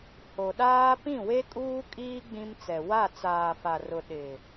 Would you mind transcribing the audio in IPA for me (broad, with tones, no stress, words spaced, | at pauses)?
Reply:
ho˨ɗaː˦ pĩ˦˨we˦kʼuː˦kʼiː˦ ɡ͡bĩ˦mt͡sɛ˨ wa˦˨ t͡saː˨fa˨rʊ˨ ɗɪ˨